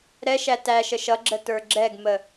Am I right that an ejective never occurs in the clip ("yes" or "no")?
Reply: yes